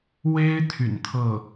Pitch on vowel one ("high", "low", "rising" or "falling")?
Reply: high